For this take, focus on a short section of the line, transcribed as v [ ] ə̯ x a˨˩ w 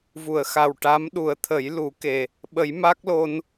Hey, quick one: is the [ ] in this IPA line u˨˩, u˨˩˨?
u˨˩˨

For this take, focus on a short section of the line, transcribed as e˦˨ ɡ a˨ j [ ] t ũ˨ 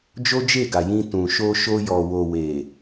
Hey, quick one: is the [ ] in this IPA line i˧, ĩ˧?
ĩ˧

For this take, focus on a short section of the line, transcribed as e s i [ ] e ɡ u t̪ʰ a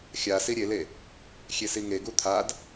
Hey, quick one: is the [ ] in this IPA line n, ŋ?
ŋ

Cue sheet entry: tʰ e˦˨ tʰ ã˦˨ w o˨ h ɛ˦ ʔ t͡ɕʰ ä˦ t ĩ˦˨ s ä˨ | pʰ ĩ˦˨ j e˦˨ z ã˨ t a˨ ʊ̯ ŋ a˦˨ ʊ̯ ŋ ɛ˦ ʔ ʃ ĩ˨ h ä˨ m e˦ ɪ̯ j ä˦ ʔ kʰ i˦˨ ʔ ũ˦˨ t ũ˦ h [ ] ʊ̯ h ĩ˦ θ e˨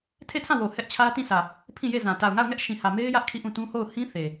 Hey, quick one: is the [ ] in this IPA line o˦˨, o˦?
o˦˨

